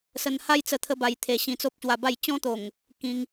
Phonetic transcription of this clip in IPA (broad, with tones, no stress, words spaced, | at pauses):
sə˧nha˦jt͡sə˧ t̪ʰə˦ba˧j t̪ʰe˨˩ ɕĩ˧t͡so˦p̚ɕwa˧ba˥˧j t͡ɕɔ̃˦t̪o˨˩ŋ | kĩ˧ŋ